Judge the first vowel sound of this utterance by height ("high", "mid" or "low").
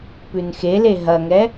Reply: high